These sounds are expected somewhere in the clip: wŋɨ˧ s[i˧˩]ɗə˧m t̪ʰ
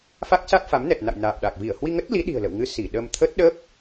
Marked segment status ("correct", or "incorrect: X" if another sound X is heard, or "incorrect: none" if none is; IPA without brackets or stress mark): correct